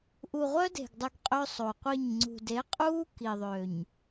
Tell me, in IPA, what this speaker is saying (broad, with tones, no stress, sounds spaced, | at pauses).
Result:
ʔ u˨ ʁʷ œ˦ d e̤˨ ɡ dˤ u˨ ɡ qʼ ø˦ sˤ o˨ qʷ i˦˨ ɲ ŋ͡ǀ ṳ˨ d e˨˦ qʼ uː˦ k i˨ ðˤ ø˨ ɲ